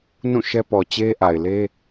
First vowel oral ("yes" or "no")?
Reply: no